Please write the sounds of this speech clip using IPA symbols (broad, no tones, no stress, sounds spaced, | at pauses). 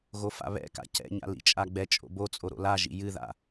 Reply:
ɣ o f a̰ β ɛ̰ k a̰ c ɛ̰ ɲ a̰ l ḭ t͡ʃʼ a ɡ͡b ɛ t͡ʃʼ o̰ b o t͡sʼ o ɾ o̰ l a ʒ ḭ j ɨ ð a̰